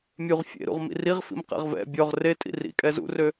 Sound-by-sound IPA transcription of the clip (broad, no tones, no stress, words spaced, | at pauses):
mʲuʁ fʲḛɾṵʁ mḭriʁfḭm qɛ̰ʁvɛ̰ bʲɔʁ re tʼḭrḭ kʼɛzṵrø